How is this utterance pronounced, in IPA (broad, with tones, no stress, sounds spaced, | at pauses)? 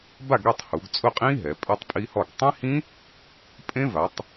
b a˥˨ ɡ ɾ e˥˨ tˤ h u˩˧ ɡ t͡sʼ ʊ˥˨ qʼ ĩ˦˥ ɦ ɛ˩˧ pʼ ɛ˦˥ tˤ pʼ i˦˥ h ɔ˥˨ ɡ tˤ ĩ˦˥ h ĩ˦˥ | pʼ ẽ˦˥ v a˩˧ tˤ